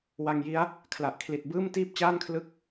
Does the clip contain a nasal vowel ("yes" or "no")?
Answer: no